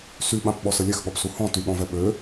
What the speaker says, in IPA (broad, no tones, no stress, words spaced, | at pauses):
syɓãpɓɔsə lʲɛxɠɔpsu hɔ̃ tyɠɔ̃vɛ ɓø